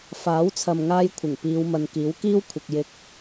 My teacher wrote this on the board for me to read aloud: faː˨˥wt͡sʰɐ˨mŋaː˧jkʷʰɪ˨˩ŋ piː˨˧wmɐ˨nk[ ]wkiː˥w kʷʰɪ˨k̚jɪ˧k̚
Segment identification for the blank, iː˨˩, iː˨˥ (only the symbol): iː˨˥